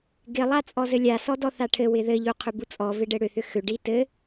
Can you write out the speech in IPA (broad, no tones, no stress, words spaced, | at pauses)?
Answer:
ɡɪlˠa t͡sʼɔzɘlʲa sɔdɔθaʈʰɘ wɪðɘʎu qʰʏbut͡sʼɔ vɪɖɘɽʏθʏ xʏɖi tɘ